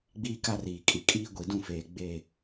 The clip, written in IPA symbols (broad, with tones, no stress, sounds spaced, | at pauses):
ɡ͡b iː˦ k a˦ r iː˨ kʼ i˨ kʼ iː˦ ɡʷ i˨ d ũ˦˨ f eː˨ ɡ͡b e˦˨